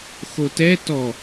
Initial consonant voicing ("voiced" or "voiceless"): voiceless